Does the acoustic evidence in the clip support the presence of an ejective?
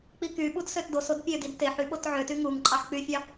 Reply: yes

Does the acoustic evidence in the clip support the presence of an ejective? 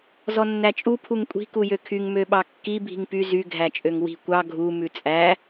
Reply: yes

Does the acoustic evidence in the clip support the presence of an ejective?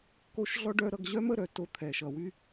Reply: no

